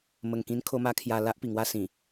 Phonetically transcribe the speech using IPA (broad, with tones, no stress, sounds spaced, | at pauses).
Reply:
m ə˨˩ ŋ k ĩ˧ n kʰ o˧ m a˧ kʰ j a˧ l a˦ ʔ p i˨˩ ŋ w a˦ s ĩ˨˩